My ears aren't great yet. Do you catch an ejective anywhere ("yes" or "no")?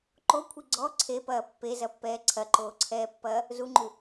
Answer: no